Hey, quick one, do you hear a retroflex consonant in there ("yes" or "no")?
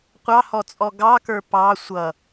no